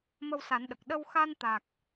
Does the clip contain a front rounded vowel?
no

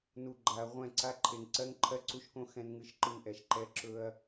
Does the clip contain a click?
yes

